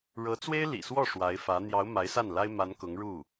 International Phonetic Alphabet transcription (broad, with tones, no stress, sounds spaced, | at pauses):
ɻ ɤ˧˥ t͡s w e˥ ɪ̯ l ḭ˨˩ s w ɔ˥˩ ʂ w a˧˥ ɪ̯ f ä˧˥ n̪ j ɑ˧˥ ʊ̯ m a˧˥ ɪ̯ s a˥˩ n l a˥ ɪ̯ m a˧˥ n k ʊ˧˥ ŋ ɻ u˥˩